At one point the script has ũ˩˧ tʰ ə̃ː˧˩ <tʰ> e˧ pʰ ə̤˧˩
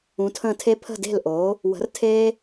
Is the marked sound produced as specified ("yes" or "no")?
yes